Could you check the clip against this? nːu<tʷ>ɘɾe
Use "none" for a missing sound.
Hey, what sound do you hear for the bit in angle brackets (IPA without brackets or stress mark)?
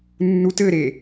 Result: t